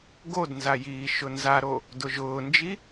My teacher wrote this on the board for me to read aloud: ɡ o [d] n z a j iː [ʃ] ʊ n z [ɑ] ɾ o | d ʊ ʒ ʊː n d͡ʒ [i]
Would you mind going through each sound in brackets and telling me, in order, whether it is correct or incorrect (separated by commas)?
correct, correct, incorrect, correct